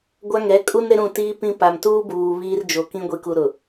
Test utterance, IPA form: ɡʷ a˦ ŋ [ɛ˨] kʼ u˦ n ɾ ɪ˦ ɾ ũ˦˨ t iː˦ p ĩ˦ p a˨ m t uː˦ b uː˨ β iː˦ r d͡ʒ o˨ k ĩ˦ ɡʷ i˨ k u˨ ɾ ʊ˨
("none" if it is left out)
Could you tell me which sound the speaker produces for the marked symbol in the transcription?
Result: ɛ˨˦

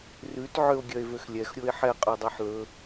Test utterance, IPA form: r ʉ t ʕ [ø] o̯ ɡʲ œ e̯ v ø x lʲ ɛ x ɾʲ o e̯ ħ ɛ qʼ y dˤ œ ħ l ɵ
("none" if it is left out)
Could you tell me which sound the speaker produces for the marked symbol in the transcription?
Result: ø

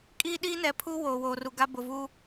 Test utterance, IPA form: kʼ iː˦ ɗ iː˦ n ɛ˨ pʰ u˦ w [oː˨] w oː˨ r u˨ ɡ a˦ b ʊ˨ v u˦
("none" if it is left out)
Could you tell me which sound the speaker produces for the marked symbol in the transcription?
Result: oː˨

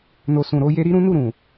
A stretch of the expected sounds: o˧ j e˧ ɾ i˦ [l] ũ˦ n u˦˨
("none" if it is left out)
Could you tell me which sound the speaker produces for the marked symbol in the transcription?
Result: ɾ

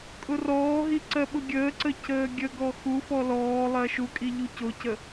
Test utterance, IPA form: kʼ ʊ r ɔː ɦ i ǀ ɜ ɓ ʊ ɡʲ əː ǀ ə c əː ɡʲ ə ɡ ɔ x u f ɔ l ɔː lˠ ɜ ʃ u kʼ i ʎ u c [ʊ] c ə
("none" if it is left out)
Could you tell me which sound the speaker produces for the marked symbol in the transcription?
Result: ʊ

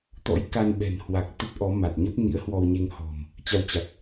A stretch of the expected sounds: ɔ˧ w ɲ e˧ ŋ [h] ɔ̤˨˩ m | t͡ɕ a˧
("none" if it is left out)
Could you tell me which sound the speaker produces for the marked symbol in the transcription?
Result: h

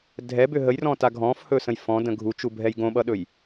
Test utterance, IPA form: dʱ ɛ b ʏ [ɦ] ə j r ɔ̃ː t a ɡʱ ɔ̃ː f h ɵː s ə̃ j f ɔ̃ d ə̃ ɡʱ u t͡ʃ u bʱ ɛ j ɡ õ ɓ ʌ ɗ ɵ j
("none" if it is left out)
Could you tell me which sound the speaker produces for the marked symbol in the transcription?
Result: ɦ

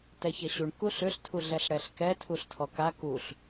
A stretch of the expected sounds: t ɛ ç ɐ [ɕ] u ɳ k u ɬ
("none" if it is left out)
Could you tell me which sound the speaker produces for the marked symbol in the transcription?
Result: ɕ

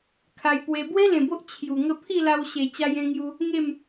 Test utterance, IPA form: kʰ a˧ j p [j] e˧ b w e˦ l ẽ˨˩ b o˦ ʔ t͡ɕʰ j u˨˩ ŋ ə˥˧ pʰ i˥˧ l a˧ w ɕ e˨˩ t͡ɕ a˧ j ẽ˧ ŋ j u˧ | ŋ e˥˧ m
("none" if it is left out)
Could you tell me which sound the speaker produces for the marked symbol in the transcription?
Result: w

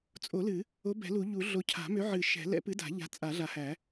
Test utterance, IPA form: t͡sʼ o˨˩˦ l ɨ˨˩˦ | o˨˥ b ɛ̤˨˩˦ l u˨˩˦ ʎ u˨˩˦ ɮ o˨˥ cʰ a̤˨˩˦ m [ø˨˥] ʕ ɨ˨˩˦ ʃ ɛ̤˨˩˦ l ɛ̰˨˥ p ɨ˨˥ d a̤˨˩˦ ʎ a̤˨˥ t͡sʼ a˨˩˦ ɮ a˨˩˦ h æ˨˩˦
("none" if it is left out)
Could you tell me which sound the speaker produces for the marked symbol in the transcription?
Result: ø˨˥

